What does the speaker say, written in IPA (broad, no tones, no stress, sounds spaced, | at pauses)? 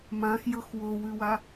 m ã x j ɤ x w o w ʉ w a